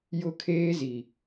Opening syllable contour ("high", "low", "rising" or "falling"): high